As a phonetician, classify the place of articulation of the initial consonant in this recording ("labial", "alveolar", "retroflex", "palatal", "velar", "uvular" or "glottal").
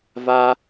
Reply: labial